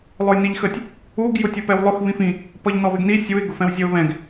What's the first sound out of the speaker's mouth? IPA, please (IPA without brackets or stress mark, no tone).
lˠ